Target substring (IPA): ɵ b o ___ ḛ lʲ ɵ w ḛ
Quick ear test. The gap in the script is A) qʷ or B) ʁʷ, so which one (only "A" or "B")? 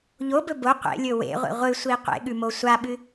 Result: A